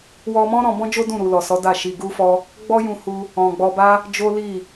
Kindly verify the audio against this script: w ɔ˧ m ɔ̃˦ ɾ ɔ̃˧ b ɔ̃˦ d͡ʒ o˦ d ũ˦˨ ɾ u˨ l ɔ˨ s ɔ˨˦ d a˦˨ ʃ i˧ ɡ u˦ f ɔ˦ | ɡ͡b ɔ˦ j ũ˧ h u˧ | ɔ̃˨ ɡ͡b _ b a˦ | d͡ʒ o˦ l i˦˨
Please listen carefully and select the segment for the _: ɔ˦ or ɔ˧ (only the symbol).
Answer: ɔ˧